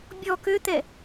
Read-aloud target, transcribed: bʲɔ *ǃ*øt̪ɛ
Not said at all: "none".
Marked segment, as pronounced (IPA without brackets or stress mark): k